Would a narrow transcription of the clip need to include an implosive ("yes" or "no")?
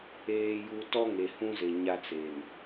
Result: no